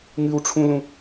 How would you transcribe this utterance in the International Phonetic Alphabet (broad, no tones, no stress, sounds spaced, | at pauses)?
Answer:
ŋ ɨ w ʈ͡ʂʰ ũ l ũ